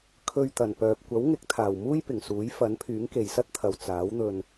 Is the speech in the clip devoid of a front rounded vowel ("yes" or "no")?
no